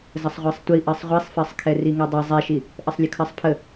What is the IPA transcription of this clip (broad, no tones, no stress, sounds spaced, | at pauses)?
z ə sˤ ʁʷ ɜ sˤ tʷ i ʔ ɜ sˤ ʁʷ i sˤ f ɜ sˤ kʰ ɛ r i ŋ ɛ dˤ i zˤ ɛ ʃ i | ʔ ə sˤ lʲ ə kʰ ɜ sˤ pʰ ə